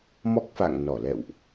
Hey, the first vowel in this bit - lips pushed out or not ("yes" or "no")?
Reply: yes